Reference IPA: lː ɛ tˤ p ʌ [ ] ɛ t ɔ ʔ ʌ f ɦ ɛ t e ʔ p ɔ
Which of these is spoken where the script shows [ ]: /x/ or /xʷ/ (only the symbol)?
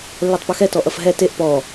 x